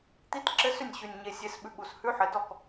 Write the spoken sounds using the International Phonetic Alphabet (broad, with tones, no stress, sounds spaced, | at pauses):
t̪ i˧˥˧ t ǁ ɘ˧˥˧ s ʏ˥˩ nʲ ɕ ʉ˨˩ nʲ ɲ e˨˩ sʲ e˧˥ s ɓ ʉ˧˥ ɠ u˨˩ s h ʉ˧˥˧ ħ ɘ˨˩ d ɔ˥˩ k